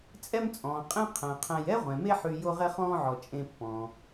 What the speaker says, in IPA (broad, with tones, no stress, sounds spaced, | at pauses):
t͡sʼ ɛ˦ m t͡sʼ ɔ̃ː˩ qʼ ẽ˦ qʰ æ̃˩ qʰ æ̃˨ j ɛ˥ ʁʷ ɛ̃˩ m e˦ ħ y˨ j o˦ ʁ ɛ˦ χ ɔ̃ː˦ ʕ ɔ˩ t͡ʃʼ ẽ˨ pː ɔ̃ː˩